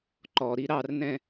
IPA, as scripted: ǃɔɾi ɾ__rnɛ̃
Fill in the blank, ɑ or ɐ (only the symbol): ɑ